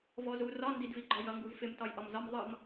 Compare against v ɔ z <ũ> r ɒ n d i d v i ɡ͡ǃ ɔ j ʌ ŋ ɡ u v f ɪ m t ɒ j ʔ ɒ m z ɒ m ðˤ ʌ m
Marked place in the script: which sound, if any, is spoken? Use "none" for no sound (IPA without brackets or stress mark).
u